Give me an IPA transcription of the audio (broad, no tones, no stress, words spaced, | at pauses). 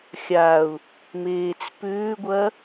xʲaʊ̯ | meːt͡spʏːɡʷɐ